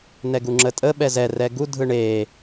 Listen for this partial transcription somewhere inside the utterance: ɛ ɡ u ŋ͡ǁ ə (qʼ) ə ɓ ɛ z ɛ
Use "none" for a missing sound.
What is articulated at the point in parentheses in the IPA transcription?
tʼ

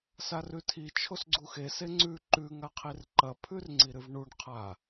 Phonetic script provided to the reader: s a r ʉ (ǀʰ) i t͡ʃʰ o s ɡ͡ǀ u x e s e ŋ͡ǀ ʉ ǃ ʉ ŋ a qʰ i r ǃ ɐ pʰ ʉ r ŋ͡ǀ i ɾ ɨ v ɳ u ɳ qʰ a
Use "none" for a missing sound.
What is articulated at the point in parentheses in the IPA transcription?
tʰ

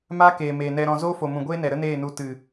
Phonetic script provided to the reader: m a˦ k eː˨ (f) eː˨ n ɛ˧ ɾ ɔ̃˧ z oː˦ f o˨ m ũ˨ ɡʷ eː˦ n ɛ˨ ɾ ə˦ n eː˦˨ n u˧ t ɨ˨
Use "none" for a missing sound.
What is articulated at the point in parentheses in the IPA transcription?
m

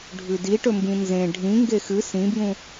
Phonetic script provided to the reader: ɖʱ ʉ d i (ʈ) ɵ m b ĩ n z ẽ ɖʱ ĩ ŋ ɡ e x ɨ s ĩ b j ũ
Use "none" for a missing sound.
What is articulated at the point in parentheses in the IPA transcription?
ʈ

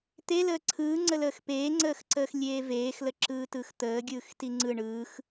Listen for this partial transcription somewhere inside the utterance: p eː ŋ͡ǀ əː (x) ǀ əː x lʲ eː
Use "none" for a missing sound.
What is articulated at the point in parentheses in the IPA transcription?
x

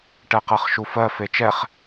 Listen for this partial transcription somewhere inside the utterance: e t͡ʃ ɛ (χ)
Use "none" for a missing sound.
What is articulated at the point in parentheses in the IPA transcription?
χ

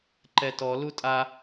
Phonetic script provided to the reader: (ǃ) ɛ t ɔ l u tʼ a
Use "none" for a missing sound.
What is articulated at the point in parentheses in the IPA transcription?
ǃ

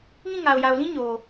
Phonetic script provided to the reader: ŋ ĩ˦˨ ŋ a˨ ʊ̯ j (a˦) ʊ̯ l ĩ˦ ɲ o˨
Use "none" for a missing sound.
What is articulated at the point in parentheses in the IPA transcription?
a˨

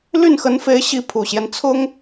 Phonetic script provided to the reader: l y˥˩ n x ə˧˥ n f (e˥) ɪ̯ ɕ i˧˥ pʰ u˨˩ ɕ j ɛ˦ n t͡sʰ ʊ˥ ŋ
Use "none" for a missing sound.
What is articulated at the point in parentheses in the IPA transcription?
e˧˥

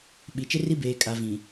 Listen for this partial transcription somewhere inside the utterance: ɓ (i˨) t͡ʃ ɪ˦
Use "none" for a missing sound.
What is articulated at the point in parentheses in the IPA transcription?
i˨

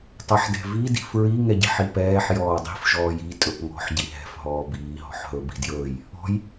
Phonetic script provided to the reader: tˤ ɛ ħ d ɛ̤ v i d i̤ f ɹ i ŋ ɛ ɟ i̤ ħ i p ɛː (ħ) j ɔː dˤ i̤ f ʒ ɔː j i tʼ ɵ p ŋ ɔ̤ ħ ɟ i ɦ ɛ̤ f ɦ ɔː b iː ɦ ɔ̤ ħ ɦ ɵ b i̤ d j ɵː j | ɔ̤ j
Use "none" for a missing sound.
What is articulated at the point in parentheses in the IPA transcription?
ħ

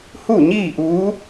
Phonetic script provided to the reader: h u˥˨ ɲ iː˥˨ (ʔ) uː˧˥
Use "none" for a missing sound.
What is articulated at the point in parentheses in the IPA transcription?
ʔ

